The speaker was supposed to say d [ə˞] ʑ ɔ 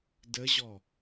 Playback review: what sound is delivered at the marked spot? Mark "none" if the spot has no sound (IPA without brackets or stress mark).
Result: ə